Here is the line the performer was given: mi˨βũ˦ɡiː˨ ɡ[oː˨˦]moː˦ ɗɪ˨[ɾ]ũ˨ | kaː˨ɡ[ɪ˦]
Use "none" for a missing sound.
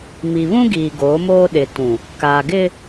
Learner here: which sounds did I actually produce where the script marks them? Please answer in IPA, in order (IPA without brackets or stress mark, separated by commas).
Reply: oː˨˦, t, ɪ˦